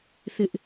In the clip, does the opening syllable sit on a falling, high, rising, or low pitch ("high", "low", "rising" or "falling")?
high